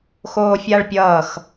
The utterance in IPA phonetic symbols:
xoːfʲaɭpʲʌːx

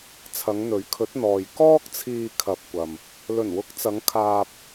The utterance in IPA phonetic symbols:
t͡sʰɐ˨˧ŋn̪ɵ˨˥ɥkʰɵ˨˥t̚n̪ɔː˨j kɔː˥k̚t͡sʰiː˧kʰɐ˨p̚kʷɐ˨m | lɵ˨˩nwʊ˨˥k̚t͡sɐ˨˧ŋ kʰaː˧p̚

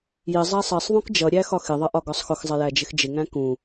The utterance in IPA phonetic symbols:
jɪ zˤæsˤɜsˤðˤũk d͡ʒʌɾʲæ xɒxɪðˤʌ ʔɒɡɒsˤxʊxzˤɪ jæd͡ʒɪxd͡ʒɪŋæ̃ kũ

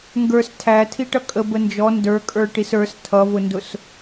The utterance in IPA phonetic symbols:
ŋɡə˞s tʰæ tʰiʈʌkʼə bənd͡ʒɔ ndə˞ kʼə˞ʈisə˞s tʰʌvʊndʊs

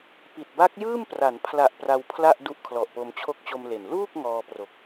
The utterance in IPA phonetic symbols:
pi˨˩t̚ ba˦˥k̚jɯː˥˩mpra˩˦npʰla˨˩ʔ pra˧wpʰla˥˩ʔ du˦˥ʔkʰlɔ˨˩ʔpo˧m t͡ɕʰo˦˥k̚t͡ɕo˧m le˨˩n luː˥˩k̚ ŋɔː˧pro˨˩k̚

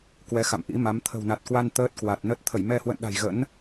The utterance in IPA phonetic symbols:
kwɛ˨˦xa̰˧˨mʔḭ˧˥ma˨˦m t̪ʰə̤˨˩wna˨˩t̚kwa˧n t̪əː˦˥t̚kwa˨˩t̚nə˦˥t̚ t̪ʰə˧˩jmɛ˧hwə̰˧˨nɗa̤˨˩j ɣə̰˧˥n

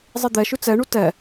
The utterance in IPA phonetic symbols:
zˤid̪ɛʃʉ t͡sɛɳu tɛ

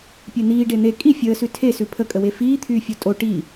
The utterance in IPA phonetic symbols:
pʲen̪iː ɖen̪e kʼi fʲəːsʉ tʰesʉ pʰəkʼəwe fiːt̪ʰyːfʲo tʼo ʈi

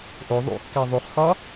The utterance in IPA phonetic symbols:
ʔo ðˤṵkːæ ðˤuχxɒ

